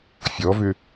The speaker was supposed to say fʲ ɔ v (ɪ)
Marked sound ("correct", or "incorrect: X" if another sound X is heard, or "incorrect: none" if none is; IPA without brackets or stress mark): incorrect: ʏ